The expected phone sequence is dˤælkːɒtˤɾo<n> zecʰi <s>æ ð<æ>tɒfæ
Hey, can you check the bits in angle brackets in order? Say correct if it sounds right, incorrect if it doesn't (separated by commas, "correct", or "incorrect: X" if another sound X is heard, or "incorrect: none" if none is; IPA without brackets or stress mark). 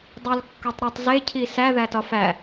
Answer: incorrect: tˤ, correct, correct